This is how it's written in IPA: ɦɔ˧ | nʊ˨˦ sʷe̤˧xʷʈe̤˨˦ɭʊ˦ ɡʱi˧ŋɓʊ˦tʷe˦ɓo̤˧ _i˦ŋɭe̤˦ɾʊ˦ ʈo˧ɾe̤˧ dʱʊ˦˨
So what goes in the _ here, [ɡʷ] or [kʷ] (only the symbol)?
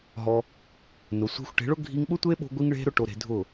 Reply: ɡʷ